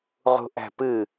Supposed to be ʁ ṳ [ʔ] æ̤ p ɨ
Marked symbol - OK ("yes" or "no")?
yes